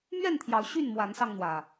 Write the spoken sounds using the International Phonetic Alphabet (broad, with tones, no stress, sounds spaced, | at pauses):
m ɥ ɛ˥˨ n t̪ʰ j ɑ˨˦ ʊ̯ ɕ y˥˨ n m w a˨˦ n s ɑ˧ ŋ n̪ w ä˨˩